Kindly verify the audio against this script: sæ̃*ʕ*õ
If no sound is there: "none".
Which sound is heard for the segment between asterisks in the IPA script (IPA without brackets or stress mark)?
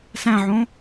ʕ